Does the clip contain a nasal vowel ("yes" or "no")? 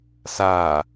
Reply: no